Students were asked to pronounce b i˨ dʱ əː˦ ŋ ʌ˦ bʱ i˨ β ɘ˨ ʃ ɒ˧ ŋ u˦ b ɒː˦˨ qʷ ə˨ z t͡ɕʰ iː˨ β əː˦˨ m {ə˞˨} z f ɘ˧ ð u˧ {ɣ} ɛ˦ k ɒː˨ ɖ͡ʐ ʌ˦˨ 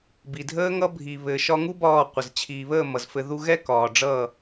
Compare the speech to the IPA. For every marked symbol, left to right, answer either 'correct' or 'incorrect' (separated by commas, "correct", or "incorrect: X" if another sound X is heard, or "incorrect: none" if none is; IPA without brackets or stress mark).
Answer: incorrect: ʌ˨, correct